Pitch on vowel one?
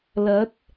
rising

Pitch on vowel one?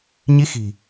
rising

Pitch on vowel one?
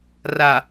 low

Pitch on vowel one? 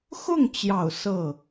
falling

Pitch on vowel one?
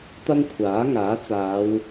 high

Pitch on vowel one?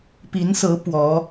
rising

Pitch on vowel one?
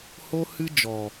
high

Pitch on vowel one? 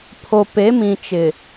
low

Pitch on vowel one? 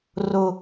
high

